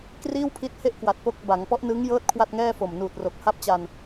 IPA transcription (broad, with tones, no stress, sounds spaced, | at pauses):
k r iː˥˩ w pʰ i˦˥ t̚ h e˥˩ ʔ k w a˨˩ t̚ p o˦˥ k̚ b a˩˦ ŋ p ɔ˦˥ ʔ n ɯ˦˥ ŋ j ɤː˦˥ t̚ kʰ w a˥˩ t̚ ŋ ɛː˥˩ f o˨˩ m n uː˨˩ t̚ r o˨˩ k̚ h a˥˩ p̚ t͡ɕ a˧ n